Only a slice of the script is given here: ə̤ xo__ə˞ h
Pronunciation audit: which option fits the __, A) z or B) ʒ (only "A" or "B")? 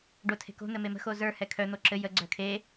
A